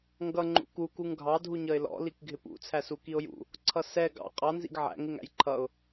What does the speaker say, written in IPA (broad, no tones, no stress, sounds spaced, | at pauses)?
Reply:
ŋ ɡ ʌ ŋ͡ǃ ṵ k u k u ŋ ɡʱ ɑ dʱ u ɲ ʌ ɪ̯ l ɔ̰ l i k ɡʱ ɪ p ṵ t͡sʰ æ s u k i ʊ̯ j ṵ | ǀʰ ʌ s ɛ ɡ ɑ̰ qʼ ɑ n z ḭ ɡ ʕ æ̰ ŋ ɪ ŋ æ̰ j ǃʰ ʌ ʊ̯